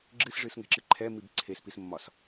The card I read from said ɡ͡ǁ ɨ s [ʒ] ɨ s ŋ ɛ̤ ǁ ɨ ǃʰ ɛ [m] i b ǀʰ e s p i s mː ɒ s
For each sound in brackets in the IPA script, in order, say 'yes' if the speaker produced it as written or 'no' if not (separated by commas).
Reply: no, yes